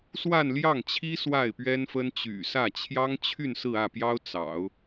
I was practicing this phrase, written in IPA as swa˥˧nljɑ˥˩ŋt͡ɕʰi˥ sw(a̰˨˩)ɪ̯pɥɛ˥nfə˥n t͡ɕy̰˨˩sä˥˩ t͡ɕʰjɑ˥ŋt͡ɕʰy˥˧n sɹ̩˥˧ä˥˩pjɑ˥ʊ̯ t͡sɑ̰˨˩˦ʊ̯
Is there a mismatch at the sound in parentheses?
yes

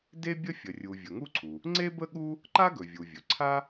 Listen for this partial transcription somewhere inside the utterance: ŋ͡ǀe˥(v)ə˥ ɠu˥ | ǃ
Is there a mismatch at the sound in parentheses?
yes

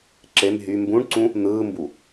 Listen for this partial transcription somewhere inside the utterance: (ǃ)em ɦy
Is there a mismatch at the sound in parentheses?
yes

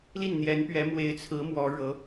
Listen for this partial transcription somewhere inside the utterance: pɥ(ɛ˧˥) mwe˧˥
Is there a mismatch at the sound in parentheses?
no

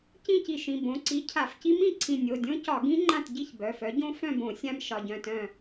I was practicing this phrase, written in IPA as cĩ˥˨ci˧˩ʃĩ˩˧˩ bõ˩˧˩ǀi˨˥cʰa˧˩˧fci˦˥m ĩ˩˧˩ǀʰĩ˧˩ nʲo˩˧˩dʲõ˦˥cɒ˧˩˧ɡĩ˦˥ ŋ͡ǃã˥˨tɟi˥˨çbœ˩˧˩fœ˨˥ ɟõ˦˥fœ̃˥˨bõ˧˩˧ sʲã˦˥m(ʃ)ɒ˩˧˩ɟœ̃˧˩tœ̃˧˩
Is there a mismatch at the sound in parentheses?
no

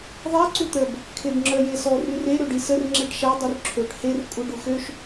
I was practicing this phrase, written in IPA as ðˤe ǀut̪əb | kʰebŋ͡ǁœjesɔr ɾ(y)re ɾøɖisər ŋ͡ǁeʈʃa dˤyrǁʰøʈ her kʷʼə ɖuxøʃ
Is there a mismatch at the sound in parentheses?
no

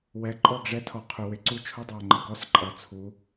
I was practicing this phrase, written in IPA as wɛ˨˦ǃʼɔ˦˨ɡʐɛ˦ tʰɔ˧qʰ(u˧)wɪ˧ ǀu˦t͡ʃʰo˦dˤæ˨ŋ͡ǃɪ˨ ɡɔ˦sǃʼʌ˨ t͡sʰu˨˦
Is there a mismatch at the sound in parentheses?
yes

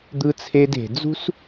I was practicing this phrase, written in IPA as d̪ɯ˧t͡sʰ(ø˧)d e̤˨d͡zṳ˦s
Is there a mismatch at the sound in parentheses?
yes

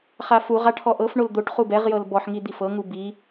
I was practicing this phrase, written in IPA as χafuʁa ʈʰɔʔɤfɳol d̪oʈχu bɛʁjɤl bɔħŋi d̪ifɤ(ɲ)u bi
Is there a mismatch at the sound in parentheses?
yes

